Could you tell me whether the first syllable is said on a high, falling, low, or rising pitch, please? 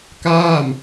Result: falling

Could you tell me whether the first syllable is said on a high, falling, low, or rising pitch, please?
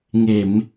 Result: low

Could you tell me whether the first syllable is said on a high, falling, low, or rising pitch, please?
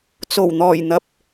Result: low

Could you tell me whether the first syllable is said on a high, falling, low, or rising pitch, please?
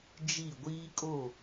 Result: falling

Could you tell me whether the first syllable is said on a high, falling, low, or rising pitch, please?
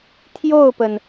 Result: falling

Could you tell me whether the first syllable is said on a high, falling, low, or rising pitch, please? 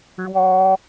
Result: high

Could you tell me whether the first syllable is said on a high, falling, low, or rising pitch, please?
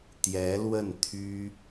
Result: rising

